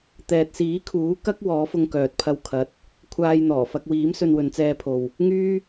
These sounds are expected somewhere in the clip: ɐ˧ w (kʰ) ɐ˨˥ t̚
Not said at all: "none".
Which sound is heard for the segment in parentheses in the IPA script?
kʰ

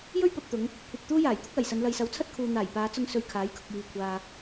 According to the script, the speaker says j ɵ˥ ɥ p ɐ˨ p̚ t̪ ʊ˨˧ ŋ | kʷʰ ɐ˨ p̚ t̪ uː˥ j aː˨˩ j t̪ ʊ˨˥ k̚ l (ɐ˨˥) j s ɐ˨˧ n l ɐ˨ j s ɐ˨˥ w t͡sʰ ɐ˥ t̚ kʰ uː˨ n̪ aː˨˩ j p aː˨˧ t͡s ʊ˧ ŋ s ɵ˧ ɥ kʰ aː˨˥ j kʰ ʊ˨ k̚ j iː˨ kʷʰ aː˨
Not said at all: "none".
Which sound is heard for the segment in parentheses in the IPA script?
ɐ˨˩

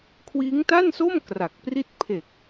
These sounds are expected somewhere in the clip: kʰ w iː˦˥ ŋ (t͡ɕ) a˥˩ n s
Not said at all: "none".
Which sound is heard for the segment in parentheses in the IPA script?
t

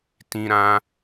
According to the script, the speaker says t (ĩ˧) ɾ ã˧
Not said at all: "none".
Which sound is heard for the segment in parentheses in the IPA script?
ĩ˧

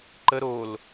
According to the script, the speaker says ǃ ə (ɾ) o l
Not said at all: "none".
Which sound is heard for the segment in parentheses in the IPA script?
ɾ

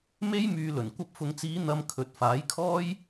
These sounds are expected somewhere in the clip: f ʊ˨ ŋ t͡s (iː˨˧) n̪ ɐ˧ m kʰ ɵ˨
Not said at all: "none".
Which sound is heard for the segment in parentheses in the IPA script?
iː˨˧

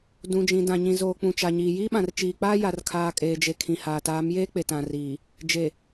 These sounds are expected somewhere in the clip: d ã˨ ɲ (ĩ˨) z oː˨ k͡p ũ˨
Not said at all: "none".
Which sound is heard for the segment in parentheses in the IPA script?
ĩ˨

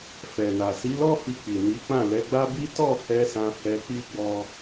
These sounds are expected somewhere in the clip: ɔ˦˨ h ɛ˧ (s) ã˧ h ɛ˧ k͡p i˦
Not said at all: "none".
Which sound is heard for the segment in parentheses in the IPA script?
s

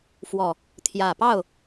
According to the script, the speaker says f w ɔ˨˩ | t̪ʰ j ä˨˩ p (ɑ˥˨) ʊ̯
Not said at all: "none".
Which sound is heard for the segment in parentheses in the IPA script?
ɑ˥˨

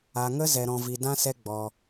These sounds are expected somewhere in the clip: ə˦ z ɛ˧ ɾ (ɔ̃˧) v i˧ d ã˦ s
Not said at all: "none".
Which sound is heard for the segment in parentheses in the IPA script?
ɔ̃˧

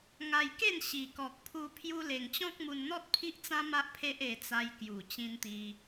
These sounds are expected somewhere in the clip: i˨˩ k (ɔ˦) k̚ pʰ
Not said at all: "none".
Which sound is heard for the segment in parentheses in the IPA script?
ɔ˨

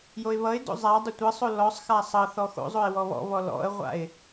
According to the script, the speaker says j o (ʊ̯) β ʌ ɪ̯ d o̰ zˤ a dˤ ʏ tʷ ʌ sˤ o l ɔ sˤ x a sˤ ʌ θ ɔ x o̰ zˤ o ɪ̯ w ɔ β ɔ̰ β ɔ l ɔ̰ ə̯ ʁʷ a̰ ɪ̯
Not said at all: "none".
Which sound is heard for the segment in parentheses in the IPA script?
ɪ̯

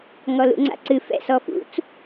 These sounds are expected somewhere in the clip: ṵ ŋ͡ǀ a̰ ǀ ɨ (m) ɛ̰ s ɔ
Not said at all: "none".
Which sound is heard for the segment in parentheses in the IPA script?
f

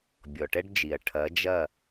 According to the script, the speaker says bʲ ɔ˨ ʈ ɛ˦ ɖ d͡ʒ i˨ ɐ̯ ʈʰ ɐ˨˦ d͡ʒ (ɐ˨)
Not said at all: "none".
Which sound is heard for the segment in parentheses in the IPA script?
ɐ˦˨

